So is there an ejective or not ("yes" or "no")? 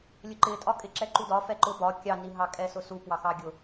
yes